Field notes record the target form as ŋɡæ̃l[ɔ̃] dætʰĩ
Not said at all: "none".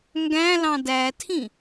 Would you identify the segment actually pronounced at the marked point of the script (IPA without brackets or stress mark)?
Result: ɑ̃